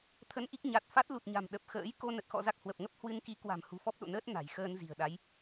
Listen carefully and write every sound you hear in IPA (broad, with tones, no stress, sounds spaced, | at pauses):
t̪ʰ ə˧ n ʔ i˦˥ k̚ ɲ a˨˩ t̚ f a˦˥ t̚ l u˨˩ t̚ ɲ a̤˨˩ m ɗ ə˨˩ p̚ x ə̰ː˧˥ j k o˧ n ə˨˩ t̚ x ɔ̰˧˨ z a˦˥ k̚ h w ə˨˩ p̚ ŋ ə˦˥ p̚ h w ɨ˧ n k i˨˦ k w a̤˨˩ m h ṳ˨˩ f ɔ˦˥ p̚ ɗ o̰˧˨ n əː˦˥ t̚ n a̤˨˩ j x əː˧ n z i̤˨˩ ə̯ ɗ a˨˦ j